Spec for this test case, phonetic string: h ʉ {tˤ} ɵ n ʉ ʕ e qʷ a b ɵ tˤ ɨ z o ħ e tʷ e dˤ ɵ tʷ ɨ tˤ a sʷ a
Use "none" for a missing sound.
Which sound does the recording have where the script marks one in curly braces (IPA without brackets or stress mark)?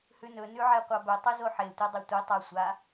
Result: n